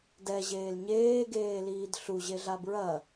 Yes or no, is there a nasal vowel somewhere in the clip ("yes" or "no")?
no